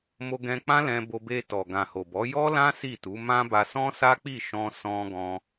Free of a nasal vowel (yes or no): no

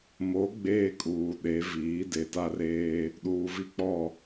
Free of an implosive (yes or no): no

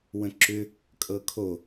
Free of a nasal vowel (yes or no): no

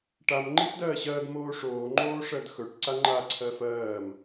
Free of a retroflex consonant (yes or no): no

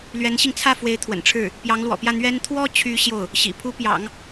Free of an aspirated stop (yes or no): no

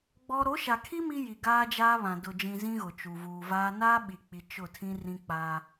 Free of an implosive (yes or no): no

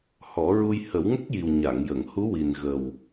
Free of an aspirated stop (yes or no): yes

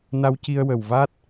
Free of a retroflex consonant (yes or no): yes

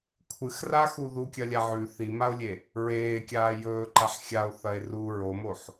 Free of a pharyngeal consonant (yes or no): no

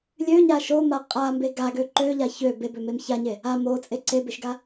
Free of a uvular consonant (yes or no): no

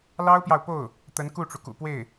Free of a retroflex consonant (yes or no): no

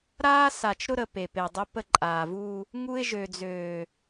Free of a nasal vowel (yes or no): yes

